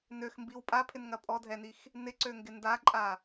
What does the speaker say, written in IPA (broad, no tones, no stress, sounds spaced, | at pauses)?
n ø x m b i w pʼ a pʰ ɪ n ŋ ɐ pʼ ɔ dʱ ɛ n i x | n ɪ ǀ ø ŋ ɡ ɪ n d a ǃʼ a